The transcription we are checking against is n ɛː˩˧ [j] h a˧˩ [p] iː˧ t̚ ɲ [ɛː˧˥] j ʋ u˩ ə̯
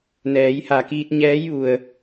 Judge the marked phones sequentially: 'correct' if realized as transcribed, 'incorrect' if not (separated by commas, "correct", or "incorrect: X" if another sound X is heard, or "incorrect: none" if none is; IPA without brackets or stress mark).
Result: correct, incorrect: k, correct